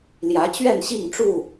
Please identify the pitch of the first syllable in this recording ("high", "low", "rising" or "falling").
rising